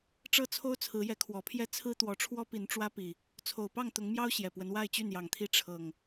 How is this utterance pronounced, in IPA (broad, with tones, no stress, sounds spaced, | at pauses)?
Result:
ʈ͡ʂ ɤ˦ t͡sʰ o˦ ʊ̯ t͡sʰ ɹ̩˨˦ j ɛ˨˦ kʰ w ɔ˨˩ pʰ j ɛ˦ t͡sʰ ɹ̩˦ t̪ w ɔ˨˦ ʈ͡ʂʰ w ɔ˦ p i˨˦ n ʈ͡ʂ w ä˦ p i˨˩ | t͡sʰ o˨˩ ʊ̯ p ɑ˥˨ ŋ t̪ ʊ˨˦ ŋ m j ɑ˦ ʊ̯ ɕ j ɛ˨˩ p w ə˦ n w a˥˨ ɪ̯ t͡ɕ y˥˨ n j ɑ˨˩ ŋ t̪ʰ i˥˨ ʈ͡ʂʰ ɤ˨˩ ŋ